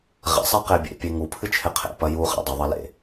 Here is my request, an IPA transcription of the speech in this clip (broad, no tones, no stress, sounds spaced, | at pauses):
ʁ ɛ̰ sˤ ɛ q e bʲ ḛ pʲ e ŋ u pʰ ɨ t͡ʃʰ e qʰ ḛ p ɐ j u χ ɛ̰ dˤ ɨ ðˤ ɐ l ḛ